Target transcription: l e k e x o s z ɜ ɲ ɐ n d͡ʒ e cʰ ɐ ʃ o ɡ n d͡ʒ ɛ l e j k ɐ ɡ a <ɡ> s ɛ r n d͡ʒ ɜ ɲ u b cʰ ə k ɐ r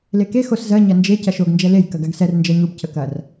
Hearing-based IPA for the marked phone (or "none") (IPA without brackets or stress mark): ɡ